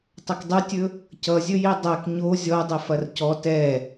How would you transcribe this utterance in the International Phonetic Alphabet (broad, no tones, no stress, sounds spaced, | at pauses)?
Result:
tˤ ɐ k dˤ ɵ tʲ ɵ | c ʌ zʲ ɵ j i dˤ ɛ k ɲ o zʲ ɔ dˤ i f ɐ r c ɔ t ɛ